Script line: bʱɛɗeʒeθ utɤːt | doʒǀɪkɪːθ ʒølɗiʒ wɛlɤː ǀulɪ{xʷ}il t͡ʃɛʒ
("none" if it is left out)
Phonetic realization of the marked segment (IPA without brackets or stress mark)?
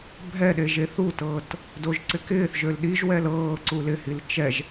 h